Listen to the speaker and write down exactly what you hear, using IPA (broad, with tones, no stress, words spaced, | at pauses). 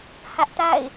hä˦ʔta̰˦˨ɪ̯